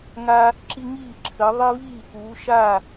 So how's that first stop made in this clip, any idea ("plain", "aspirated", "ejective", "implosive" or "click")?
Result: click